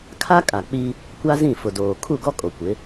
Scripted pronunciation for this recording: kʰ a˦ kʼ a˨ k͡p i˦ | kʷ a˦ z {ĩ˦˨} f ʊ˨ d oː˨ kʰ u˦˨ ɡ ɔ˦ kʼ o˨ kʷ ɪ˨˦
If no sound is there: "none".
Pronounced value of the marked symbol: ĩ˦˨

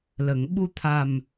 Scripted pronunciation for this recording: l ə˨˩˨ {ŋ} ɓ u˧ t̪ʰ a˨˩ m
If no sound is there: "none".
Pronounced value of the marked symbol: ŋ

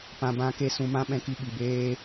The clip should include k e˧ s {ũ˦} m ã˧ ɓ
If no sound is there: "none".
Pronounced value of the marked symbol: ũ˨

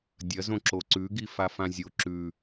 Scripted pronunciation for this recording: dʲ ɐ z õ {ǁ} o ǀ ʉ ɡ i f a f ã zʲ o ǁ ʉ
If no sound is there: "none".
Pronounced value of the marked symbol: ǁ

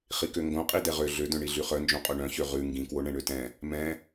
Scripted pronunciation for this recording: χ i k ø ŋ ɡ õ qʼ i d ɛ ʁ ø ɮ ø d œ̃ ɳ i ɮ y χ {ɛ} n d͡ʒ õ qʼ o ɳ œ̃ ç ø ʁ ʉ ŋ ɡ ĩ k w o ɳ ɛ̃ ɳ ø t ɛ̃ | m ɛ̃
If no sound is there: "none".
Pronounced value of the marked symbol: œ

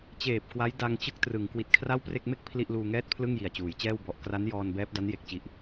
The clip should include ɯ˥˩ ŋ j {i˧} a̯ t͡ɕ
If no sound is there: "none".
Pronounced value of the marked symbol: i˨˩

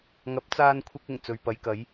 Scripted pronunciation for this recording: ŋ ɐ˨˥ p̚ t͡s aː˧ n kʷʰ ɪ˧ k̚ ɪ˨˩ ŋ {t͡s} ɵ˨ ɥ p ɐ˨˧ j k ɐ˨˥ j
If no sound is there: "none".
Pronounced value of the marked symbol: t͡s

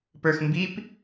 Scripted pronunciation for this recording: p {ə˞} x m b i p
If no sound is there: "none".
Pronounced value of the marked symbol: ə˞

